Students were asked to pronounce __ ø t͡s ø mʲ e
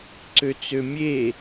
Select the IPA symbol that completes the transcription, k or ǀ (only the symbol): ǀ